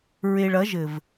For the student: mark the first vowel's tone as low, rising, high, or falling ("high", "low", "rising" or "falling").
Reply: low